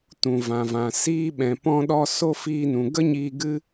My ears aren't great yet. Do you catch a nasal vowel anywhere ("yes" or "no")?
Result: yes